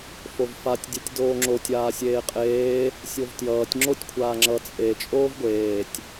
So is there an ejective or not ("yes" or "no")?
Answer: yes